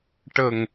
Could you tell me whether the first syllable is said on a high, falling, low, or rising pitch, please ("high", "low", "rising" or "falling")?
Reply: low